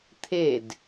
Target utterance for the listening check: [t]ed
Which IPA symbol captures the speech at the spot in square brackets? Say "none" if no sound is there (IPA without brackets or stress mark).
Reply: t̪ʰ